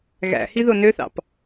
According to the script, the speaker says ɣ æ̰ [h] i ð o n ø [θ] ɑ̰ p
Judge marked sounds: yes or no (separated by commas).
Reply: yes, yes